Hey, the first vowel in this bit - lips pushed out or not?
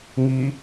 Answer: no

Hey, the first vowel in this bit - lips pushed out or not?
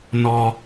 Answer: yes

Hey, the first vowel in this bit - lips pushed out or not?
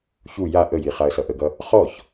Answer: yes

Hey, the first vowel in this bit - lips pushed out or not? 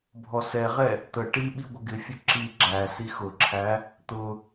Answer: yes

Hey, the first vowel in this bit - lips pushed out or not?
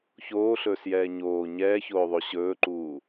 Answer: yes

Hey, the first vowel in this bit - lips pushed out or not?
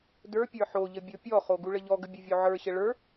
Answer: no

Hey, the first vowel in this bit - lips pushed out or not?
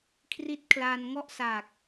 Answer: no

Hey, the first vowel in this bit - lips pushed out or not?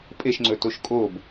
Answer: no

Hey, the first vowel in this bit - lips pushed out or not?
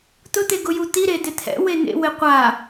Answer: yes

